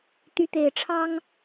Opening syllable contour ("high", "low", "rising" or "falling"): rising